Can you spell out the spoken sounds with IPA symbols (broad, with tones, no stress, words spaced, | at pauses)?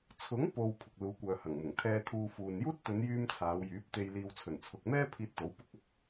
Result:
t͡sʰʊ˨˥ŋpo˨w pʰʊ˨k̚luː˨˧kʷœː˨ hɐ˨˩ŋmʊ˨˩ŋ t̪ʰɛː˧t̪ʰuː˧fuː˨n juː˥t̚t̪ɵ˨˧njyː˧m t͡sʰaː˨˧wjyː˨˥p̚ t̪e˨jliː˨w t͡sʰɵ˨˩nt͡sʰʊ˨k̚mɛː˥ pʰiː˧t̚t̪o˨˥w pʊ˥k̚ɐ˥k̚